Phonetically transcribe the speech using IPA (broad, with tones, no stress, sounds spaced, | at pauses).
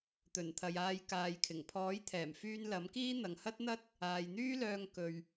t̪ ɵ˨˩ n t̪ʰ ɐ˨ j aː˧ j k aː˨ j kʰ ɪ˨˩ ŋ pʰ ɔː˨˥ j t̪ʰ ɛː˨˩ m f yː˧ n l ɐ˨˥ m k iː˥ n̪ ɐ˨ ŋ h ɐ˥ t̚ n̪ ɐ˥ t̚ | aː˨ j n̪ yː˥ l œː˧ ŋ k ɵ˨ ɥ